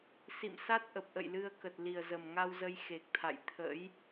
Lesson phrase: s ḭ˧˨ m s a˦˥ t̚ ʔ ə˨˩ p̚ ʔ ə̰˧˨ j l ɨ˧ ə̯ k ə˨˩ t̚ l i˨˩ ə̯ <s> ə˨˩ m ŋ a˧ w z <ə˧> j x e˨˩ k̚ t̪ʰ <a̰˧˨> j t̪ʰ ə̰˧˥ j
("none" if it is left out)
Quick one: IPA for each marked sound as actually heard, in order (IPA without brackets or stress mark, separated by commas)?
z, ə˧, a̰˧˨